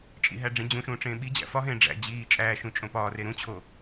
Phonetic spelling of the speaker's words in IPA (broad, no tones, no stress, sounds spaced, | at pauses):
t͡ʃʼ ḭ ɦ æ ɖ͡ʐ ĩ d͡ʑ ũ ʃ ũː ʈ͡ʂ ẽː ɓ i d͡ʑ æ̰ f ɒ ɦ ẽː ɖ͡ʐ æ̰ d͡ʑ iː t͡ʃʼ æː ʃ ũ t͡ʃʼ õ p ɒː r e ɾ ũ t͡ɕʰ o